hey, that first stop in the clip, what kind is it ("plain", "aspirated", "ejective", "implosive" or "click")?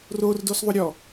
plain